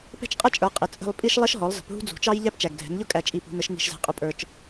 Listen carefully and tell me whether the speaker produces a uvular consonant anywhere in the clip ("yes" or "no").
yes